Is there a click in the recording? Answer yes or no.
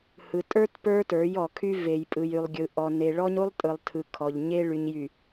no